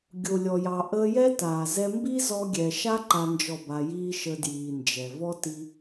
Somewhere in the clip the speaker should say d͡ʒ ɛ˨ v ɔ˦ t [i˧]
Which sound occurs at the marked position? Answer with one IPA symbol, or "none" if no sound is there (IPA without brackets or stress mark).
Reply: i˧